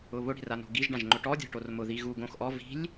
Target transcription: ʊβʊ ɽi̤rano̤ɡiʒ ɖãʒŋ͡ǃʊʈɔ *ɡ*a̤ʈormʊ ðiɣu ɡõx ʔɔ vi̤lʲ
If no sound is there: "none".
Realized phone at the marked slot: dʲ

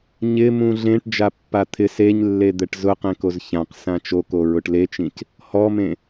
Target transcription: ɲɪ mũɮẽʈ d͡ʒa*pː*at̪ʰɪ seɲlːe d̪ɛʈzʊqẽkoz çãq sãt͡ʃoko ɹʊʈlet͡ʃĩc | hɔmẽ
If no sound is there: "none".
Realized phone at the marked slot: pː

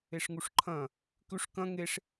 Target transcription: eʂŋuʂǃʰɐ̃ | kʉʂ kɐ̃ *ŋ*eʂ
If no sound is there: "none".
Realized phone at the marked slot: ŋ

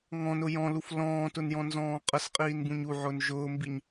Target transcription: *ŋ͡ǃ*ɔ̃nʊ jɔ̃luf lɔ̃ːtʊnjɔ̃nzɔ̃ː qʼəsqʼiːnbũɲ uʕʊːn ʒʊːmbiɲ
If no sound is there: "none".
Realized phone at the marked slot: ŋ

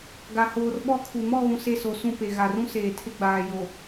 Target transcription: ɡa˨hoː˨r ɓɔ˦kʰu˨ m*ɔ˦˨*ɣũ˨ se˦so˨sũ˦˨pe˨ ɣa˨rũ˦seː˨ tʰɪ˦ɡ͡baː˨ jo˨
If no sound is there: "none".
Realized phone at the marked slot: ɔ˦˨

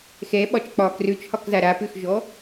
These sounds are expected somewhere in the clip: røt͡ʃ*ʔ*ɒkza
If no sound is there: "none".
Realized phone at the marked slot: h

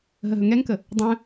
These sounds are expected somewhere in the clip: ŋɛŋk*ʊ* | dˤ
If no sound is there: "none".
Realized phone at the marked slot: ə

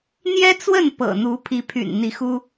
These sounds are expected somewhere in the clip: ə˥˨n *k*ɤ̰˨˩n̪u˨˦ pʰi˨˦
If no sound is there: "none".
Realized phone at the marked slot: p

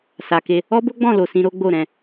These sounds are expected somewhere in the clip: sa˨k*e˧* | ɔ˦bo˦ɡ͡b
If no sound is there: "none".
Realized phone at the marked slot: e˧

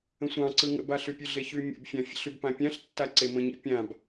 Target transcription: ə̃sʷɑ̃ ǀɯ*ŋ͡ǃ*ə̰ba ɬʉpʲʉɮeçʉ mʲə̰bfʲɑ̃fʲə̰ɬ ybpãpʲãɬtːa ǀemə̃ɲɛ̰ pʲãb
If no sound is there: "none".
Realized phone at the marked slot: ŋ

